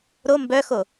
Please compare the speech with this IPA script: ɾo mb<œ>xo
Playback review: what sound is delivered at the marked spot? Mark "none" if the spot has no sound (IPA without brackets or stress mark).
œ